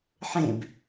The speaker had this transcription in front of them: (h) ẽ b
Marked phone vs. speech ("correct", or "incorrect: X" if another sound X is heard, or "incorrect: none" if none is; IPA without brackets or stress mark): incorrect: ħ